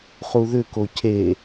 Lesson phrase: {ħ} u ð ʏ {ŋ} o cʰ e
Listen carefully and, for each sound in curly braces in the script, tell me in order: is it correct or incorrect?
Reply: incorrect, incorrect

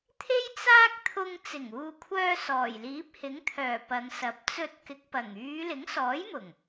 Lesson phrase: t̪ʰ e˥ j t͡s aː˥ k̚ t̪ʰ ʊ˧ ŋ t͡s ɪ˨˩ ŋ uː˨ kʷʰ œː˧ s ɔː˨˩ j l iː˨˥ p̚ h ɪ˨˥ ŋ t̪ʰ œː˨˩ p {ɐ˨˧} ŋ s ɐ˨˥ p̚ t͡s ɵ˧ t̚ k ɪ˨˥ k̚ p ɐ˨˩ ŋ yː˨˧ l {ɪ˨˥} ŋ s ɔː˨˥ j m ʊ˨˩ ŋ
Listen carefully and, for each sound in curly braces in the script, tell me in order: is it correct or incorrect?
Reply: correct, correct

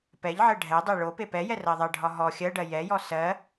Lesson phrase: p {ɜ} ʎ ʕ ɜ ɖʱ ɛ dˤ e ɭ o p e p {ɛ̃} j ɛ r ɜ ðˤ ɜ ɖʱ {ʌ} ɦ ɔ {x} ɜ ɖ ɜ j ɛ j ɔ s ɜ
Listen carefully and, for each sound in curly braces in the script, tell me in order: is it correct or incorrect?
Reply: incorrect, incorrect, incorrect, incorrect

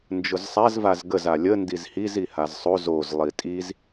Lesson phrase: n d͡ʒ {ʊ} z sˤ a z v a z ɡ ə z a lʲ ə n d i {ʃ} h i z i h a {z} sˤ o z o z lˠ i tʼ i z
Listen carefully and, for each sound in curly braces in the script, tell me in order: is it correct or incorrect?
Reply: correct, incorrect, correct

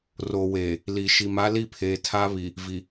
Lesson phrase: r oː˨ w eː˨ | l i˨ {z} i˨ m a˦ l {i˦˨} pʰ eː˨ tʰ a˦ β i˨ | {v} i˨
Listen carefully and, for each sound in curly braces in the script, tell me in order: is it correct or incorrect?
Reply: incorrect, correct, correct

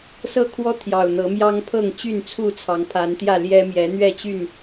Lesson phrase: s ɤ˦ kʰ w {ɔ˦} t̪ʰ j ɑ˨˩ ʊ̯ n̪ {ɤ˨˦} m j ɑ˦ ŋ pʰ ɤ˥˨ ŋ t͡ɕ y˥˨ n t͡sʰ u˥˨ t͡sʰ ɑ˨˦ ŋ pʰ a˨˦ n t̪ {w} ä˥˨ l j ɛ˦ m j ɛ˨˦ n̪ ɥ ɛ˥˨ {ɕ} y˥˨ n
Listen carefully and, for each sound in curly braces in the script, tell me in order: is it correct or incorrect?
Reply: correct, correct, incorrect, incorrect

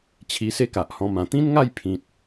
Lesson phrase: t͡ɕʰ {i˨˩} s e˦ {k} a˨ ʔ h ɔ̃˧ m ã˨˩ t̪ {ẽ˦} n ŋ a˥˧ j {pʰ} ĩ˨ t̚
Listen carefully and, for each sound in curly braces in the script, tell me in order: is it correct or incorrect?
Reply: incorrect, correct, incorrect, correct

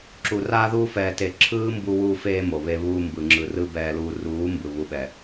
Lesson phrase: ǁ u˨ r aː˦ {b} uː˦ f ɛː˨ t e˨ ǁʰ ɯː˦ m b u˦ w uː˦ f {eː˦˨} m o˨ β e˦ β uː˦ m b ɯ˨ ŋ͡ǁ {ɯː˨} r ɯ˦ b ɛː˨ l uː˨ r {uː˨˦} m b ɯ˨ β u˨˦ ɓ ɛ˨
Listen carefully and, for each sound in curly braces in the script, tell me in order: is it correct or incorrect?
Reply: incorrect, incorrect, incorrect, correct

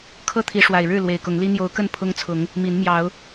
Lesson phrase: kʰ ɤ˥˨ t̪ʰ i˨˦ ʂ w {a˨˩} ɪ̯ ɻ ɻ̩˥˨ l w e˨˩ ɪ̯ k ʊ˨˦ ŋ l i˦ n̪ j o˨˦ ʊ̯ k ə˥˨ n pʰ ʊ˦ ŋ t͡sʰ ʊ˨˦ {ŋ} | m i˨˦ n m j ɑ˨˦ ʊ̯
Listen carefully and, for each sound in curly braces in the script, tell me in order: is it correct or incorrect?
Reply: correct, correct

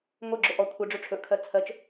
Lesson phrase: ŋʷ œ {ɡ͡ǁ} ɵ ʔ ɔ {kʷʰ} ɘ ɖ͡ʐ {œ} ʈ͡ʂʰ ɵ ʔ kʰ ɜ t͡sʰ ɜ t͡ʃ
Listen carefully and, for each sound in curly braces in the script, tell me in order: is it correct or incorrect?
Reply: correct, correct, incorrect

